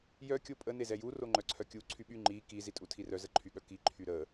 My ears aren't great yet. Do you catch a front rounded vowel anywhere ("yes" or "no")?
yes